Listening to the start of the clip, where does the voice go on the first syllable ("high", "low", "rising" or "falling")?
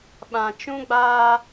low